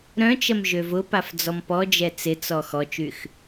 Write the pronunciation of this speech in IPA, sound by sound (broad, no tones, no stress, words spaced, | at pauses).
ɾœ̃t͡ʃɐm ʒøvʊpaf d͡zɔmpɔd͡ʒɛ t͡sɪt͡sɔ xɔt͡ʃyx